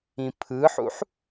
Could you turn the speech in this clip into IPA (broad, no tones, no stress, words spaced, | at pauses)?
ĩpʰɯħṵħ